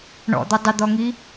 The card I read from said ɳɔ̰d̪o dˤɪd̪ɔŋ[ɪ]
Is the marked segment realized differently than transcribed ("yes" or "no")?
yes